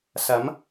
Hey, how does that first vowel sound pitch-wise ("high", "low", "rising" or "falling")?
rising